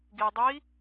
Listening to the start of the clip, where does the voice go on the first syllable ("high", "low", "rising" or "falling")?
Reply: low